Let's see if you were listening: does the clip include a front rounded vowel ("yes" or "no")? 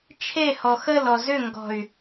yes